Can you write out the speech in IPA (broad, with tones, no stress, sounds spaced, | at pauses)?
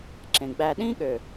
ǁ ẽ˨ ɡ͡b æ˧ ɗ ĩ˦ ɠ ø˨